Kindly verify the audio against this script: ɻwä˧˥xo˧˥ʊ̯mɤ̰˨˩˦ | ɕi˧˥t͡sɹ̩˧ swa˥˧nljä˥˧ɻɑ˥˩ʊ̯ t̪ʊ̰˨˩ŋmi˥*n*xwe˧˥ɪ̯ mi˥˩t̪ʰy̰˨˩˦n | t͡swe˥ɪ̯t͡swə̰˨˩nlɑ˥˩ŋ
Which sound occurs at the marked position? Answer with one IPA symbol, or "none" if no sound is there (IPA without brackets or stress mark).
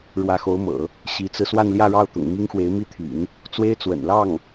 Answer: ŋ